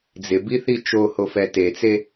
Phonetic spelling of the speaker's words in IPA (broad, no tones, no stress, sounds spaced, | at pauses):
d͡z ɪ b i θ i t͡ʃ o h o f ɛ t e t͡s e